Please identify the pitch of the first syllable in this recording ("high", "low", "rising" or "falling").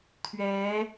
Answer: rising